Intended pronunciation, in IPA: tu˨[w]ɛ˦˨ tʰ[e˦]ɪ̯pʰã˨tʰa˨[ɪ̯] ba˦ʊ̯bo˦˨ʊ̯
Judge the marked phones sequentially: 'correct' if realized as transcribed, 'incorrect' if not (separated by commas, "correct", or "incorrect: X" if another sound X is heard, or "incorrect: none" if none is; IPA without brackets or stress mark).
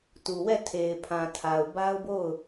correct, incorrect: e˨, incorrect: ʊ̯